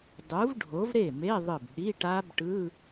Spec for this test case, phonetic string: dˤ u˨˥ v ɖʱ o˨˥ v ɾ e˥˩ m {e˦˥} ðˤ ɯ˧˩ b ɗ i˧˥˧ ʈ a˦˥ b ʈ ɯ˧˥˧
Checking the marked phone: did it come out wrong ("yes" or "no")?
yes